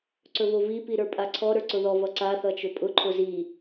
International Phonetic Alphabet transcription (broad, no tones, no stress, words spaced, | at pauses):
ǀɵvovi piɾə˞pʼaǀʰɔ ɾə˞ǀʊðɔ vʌǀa θʌt͡ʃɵpʼʊ ǃʰʊzi